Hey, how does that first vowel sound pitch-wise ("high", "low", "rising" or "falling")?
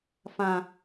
low